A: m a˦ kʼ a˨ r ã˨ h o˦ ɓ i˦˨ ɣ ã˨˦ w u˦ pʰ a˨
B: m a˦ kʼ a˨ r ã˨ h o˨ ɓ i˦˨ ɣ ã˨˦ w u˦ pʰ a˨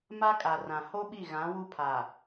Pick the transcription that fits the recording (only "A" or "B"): A